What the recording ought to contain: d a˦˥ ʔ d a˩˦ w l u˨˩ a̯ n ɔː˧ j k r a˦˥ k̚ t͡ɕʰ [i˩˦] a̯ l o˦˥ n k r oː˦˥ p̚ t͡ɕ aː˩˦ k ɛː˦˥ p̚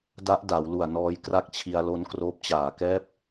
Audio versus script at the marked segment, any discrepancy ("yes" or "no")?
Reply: yes